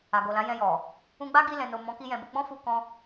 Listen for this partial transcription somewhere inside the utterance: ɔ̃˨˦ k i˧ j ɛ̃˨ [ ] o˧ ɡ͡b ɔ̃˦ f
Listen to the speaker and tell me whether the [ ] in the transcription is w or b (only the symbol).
b